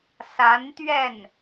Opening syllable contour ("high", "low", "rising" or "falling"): rising